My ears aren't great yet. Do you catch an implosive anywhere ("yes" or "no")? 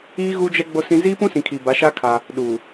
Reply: yes